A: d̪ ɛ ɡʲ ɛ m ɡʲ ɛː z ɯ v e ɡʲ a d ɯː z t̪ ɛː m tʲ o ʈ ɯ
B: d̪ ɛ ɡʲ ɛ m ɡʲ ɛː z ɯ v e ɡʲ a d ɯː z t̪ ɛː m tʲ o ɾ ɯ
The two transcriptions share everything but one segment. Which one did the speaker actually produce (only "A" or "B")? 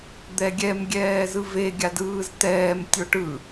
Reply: A